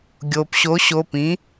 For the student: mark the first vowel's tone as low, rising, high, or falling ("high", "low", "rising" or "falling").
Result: low